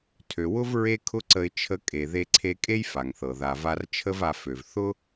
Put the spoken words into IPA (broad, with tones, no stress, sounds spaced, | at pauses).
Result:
tʰ ø˩ w ʊ˥ v ɹ e˥ kʰ ʊ˥ ǀ ə˧ ɪ̯ t͡ʃʰ ə˧ kʼ e˩ ð e˧ ǀʰ e˧ kʼ e˥ j f a˩ ŋ θ ɤ˩ ð a˩ v a˧ r t͡ʃʰ ə˥ v a˧ f ø˩ v θ ʊ˥